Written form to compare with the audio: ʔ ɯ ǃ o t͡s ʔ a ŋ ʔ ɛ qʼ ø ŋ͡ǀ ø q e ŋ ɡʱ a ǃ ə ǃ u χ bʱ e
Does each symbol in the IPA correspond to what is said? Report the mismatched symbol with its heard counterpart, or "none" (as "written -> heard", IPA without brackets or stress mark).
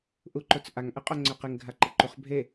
ɯ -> u